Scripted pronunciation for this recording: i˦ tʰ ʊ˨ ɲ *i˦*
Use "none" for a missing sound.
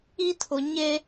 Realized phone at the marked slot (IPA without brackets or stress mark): e˦